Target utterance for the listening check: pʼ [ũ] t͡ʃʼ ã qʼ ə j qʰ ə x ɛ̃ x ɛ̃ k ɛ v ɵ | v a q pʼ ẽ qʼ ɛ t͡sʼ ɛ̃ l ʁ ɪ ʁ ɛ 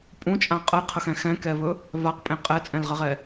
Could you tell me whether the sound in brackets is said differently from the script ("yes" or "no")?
no